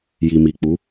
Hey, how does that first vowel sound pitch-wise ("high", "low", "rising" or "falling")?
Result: low